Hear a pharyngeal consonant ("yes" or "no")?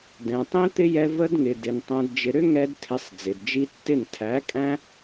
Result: no